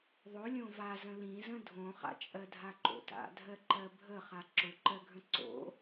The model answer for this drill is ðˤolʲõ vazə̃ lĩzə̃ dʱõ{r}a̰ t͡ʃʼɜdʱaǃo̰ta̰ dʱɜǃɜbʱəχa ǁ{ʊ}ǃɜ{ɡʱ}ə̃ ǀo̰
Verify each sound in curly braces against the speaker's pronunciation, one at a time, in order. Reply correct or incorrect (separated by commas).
incorrect, correct, correct